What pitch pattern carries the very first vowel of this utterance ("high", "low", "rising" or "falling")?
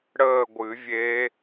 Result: falling